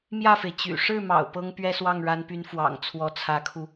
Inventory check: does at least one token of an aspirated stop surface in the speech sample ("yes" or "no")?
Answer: yes